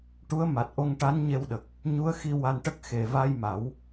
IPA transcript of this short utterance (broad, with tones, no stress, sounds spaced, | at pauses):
ʈ u˧˥ ə̯ m a˨˩ t̚ ʔ o˧ ŋ ʈ a˧˥ n ɲ e˧ w ɗ ə˨˩ k̚ | ɲ u˧˥ ə̯ x i˧ w a˧ n ʈ ə˦˥ k̚ x e˨˩ v a˧ j m a˨˩˦ w